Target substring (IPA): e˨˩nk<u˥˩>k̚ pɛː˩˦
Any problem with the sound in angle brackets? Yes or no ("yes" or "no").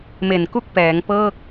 no